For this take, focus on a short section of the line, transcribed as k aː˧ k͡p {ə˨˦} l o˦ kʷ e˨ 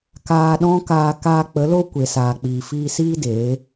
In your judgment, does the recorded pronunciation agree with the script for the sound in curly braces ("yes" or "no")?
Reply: yes